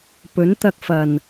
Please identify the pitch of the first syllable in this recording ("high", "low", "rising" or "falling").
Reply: rising